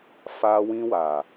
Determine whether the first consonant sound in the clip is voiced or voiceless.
voiceless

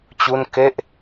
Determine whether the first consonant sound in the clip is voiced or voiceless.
voiceless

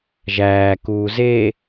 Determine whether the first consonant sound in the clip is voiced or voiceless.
voiced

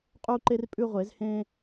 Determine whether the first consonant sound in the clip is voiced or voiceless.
voiceless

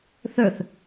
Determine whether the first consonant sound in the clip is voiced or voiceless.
voiceless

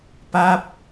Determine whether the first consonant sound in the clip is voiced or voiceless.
voiceless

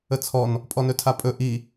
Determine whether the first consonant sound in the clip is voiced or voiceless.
voiceless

